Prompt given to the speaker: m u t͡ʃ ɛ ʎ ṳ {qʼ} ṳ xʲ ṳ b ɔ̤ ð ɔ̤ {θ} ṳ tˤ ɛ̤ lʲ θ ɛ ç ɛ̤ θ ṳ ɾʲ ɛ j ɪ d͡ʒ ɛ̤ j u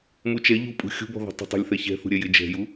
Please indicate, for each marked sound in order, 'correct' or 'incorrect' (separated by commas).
incorrect, incorrect